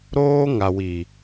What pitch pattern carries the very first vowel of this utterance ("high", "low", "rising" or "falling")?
high